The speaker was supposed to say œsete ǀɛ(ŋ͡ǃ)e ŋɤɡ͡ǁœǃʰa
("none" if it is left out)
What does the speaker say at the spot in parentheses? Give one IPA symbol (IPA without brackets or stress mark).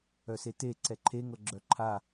ǃʰ